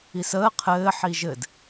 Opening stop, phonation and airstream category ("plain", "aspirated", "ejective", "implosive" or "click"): aspirated